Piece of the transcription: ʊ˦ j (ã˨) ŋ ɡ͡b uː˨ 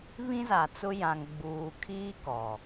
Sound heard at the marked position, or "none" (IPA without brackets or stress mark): ã˨